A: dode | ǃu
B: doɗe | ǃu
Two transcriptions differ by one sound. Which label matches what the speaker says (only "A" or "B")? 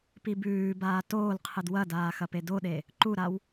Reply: B